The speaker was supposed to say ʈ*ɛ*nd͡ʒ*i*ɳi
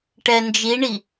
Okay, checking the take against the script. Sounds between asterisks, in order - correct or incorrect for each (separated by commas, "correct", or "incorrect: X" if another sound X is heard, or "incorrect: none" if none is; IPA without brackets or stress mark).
correct, correct